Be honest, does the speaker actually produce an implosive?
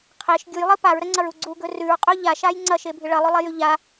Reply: no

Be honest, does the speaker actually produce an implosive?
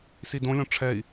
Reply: no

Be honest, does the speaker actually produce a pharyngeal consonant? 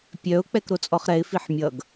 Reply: yes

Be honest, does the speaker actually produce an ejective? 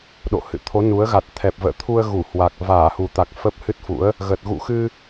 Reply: no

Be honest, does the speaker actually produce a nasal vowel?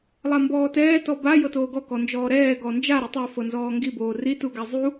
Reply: no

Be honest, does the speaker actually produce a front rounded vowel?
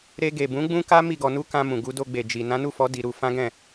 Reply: no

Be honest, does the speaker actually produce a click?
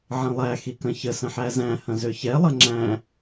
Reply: yes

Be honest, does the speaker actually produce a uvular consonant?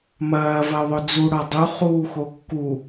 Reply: yes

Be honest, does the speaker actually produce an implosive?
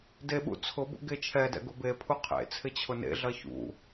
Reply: yes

